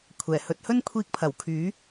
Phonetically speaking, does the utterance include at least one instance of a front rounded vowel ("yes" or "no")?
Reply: yes